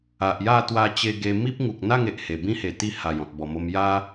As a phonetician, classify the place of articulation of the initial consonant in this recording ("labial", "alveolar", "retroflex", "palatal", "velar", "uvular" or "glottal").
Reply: glottal